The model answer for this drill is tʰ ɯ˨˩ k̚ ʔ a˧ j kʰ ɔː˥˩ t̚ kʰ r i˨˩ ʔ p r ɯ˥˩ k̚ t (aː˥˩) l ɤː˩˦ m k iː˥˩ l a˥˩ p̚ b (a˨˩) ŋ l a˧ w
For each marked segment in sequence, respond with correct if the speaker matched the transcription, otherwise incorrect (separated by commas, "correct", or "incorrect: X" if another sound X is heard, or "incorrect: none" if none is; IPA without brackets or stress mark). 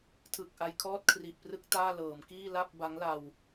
correct, incorrect: a˦˥